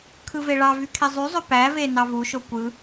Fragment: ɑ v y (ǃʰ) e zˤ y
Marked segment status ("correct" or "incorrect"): incorrect